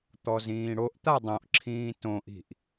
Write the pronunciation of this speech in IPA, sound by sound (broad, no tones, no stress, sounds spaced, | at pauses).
t̪ ɔ z ĩː ɽ o ʔ t̪ a dˤ õ ʔ ǁʰ ĩː t õ ʔ i̤ ʔ